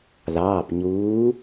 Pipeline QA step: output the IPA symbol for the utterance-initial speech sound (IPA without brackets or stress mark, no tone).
ð